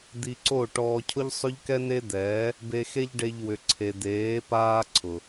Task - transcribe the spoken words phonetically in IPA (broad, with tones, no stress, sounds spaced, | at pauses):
d̪ i˧ ǀ o˦˨ ʈ ɔː˧ cʰ ʊ˦ ʎ sˤ ʏ˦ ʎ k ɛ˦ n e˦ d̪ ɛː˨˦ | b e˧ x e˦ ʎ ɖ e˧ ʎ w ʏ˨ ǀʰ e˨ d̪ eː˨˦ p aː˦ ǀʰ ʊ˨